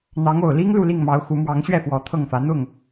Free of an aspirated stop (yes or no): no